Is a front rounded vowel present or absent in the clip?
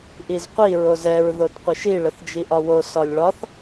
absent